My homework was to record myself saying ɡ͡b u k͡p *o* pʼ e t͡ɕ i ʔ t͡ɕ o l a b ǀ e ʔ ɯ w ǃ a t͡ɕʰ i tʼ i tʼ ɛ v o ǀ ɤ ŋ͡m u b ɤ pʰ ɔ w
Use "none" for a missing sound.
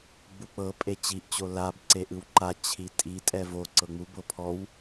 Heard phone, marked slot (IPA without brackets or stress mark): ɤ